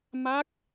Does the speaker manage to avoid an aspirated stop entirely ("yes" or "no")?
yes